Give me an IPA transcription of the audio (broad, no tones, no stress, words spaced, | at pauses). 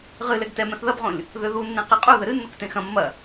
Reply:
ʁɨ lɛɡtɛmɛ̃θ ðɐbʁõlʲ | ðøðunːẽ qɛqʼuðɘ ɾɨnːok tẽxɐ̃ mːɐ